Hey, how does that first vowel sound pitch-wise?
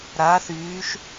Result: rising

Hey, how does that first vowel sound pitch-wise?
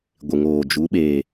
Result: low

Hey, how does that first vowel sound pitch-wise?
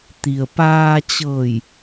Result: low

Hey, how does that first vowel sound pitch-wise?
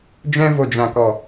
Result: high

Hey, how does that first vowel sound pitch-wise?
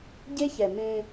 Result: high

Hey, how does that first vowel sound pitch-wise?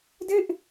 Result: falling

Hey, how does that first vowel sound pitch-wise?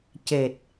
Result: low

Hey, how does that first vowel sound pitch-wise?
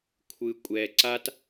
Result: low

